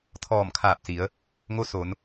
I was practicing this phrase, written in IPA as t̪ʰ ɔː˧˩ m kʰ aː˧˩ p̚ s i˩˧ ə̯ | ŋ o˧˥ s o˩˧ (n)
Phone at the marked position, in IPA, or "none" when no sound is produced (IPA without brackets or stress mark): n